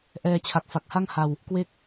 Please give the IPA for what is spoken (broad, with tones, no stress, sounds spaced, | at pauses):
ʔ ɛː˧ t͡ɕʰ a˨˩ k̚ f a˨˩ k̚ h a˥˩ ŋ h a˧ w | k w e˥˩ k̚